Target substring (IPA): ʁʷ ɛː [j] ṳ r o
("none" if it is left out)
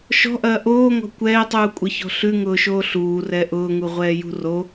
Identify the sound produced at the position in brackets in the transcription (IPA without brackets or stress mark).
j